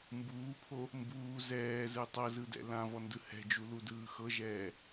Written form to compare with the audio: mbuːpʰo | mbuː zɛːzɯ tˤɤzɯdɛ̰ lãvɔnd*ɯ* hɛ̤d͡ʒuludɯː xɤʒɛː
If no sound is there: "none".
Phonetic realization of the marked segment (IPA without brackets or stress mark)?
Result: ɯ